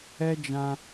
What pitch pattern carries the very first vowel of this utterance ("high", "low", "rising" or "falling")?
high